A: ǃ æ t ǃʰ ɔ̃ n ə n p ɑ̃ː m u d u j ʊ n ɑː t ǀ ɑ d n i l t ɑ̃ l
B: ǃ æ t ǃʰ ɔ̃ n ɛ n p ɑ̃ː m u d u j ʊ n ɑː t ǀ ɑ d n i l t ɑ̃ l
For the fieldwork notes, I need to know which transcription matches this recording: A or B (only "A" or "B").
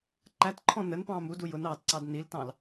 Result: A